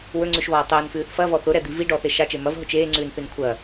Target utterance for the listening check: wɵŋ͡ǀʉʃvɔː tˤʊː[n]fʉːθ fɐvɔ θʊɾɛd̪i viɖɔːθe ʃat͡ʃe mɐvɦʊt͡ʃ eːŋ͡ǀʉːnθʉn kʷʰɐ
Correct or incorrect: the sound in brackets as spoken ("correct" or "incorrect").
correct